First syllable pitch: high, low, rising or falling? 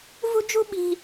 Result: high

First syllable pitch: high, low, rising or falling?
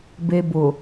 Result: low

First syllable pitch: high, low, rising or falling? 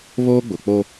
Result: high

